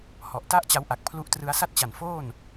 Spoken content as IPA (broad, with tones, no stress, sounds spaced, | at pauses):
h ɔ˨˩ ʔ t a˥˩ ʔ t͡ɕ a˦˥ w ʔ a˨˩ k̚ pʰ l u˦˥ ʔ t r ɯ˦˥ a̯ s a˥˩ t̚ t͡ɕ a˨˩ n f oː˥˩ n